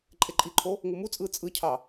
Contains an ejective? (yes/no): yes